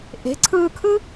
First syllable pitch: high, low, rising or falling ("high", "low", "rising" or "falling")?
rising